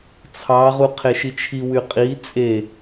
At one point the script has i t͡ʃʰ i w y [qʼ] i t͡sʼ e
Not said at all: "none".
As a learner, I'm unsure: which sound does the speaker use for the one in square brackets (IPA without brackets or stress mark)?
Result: qʼ